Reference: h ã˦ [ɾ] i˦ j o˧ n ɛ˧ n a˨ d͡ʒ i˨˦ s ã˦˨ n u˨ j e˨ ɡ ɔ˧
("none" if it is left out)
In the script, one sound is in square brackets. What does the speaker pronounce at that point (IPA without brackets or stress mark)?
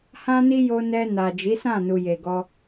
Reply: n